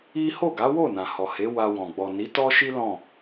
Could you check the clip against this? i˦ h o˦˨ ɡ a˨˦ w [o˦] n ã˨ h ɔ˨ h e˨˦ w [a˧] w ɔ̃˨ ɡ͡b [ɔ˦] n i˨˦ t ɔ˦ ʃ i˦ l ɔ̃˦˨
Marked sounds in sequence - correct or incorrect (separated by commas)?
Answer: incorrect, correct, incorrect